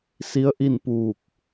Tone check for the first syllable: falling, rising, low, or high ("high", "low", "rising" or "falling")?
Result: rising